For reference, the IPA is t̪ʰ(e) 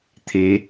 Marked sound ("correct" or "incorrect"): correct